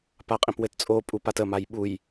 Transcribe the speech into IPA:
p a qʼ ĩ p w ɘ t t͡sʼ o pʼ u p a t ə m a j ɓ u j

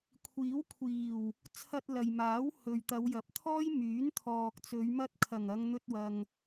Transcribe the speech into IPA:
kʷʰ iː˨˥ w kʷʰ iː˨˩ w | t͡sʰ ɐ˧ t̚ l ɐ˨ j m aː˨˥ w h ɵ˨ ɥ t̪ ɐ˨˧ w j ɐ˨˥ p̚ t̪ʰ ɔː˥ j m yː˨˥ n t̪ʰ ɔː˨ k̚ t͡s ɵ˨˧ ɥ m ɐ˧ t̚ kʰ ɐ˨˩ ŋ ɐ˨˧ ŋ n̪ ɵ˧ t̚ w ɐ˨ ŋ

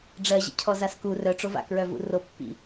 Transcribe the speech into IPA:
ɖ͡ʐ ɜ ʑ ḭ cʰ ɔ z a s k u r œ ʈ͡ʂ o v a̰ k ɹ œ v ṵ r o pː ḭ

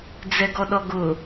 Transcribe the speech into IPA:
d͡z ɛ ɡ ɔ ɗ ɔ ɡ ʊ

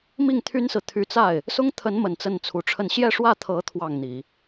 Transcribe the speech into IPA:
m i˥˩ ŋ t̪ʰ y˥ n s ɹ̩˨ t̪ʰ y˧˥ t͡s a˥˩ ɪ̯ | s ʊ˥ ŋ t̪ʰ ə˧˥ n m ə˨˩ n t͡s ə˥˩ n t͡sʰ u˧˥ ʈ͡ʂʰ ə˥˧ n ɕ j ɛ˥˧ ʂ w ä˥˩ t̪ʰ ɤ˧˥ t̪ʰ w ɑ˥˩ ŋ n̪ i˨˩˦

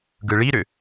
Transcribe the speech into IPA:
ɡ ɯ ɭ i ɾ ʏ

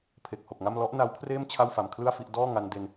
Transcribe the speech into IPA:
pʰ e˨˩ k̚ h o˨˩ k̚ ŋ a˥˩ m l ɔ˦˥ ʔ n a˦˥ w kʰ r eː˥˩ m t͡ɕʰ a˥˩ w f a˨˩ m kʰ l ɯ˥˩ a̯ f i˥˩ ʔ d ɔː˥˩ ŋ a˧ n d e˧ n

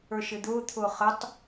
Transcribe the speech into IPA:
ə˞ ʃ ɪː d̪ ʊː t̪ʰ ʊː χ ə tˤ

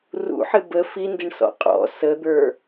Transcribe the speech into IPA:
r ṵ ħ ɪ b ə f i n d ɪ ɳ s ɔ̰ qʼ ɔ̰ s ə d̪ ə˞

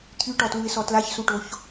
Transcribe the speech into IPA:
t̪ʰ y ʈ ɔ t l u ɪ̯ s ɔ t l a ç s u ʈ o ç

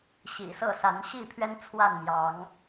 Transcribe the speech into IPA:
ɕ ḭ˨˩ s ɤ˥˨ s a˨˦ n ɕ i˥˨ pʰ ɥ ɛ˦ n t͡sʰ w a˥˨ n m j ɑ˨˦ ŋ

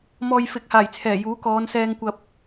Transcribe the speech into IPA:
m ɔː˧ j f ɪ˨˥ k̚ h aː˨˩ j t͡sʰ ɛː˨˩ j uː˨˥ k ɔː˨˧ n s ɛː˧ ŋ kʷ ɐ˧ p̚

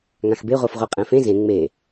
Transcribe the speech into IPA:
ŋ ã x b e ʁʷ a f ʁʷ e qʼ ɛ̃ f ẽ z ẽ ŋ͡m e

